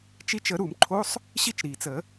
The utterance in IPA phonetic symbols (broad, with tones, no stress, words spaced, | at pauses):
t͡ʃi˧t͡ʃə˨˩˦ ɾu˨˩˦mǃʰo˧˥˧sˤ | ɕi˥˩t͡ʃɾiː˩t͡sə˨˩˦